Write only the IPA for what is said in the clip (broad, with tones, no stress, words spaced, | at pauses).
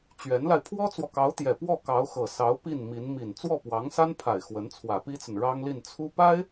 t͡ɕɥɛ˧˥nla˧ɪ̯ pʰwɔ˥t͡swɔ˨kɑ˧˥ʊ̯t̪jɛ˨˩ pwɔ˥˩kɑ˧˥ʊ̯xɤ˨˩ sɑ˧˥ʊ̯ pi˥˩nmi˧˥n mi˨˩n t͡swɔ˥˩pwɑ˧˥ŋsa˥npʰa˨˩ɪ̯ xwə˧˥nt͡sʰwä˨˩pi˥t͡sə˨n ɻɑ˥ŋli˥˩n t͡sʰu˥ pa˥ɪ̯